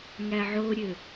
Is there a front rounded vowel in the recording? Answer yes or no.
yes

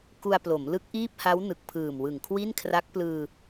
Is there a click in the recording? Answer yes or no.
no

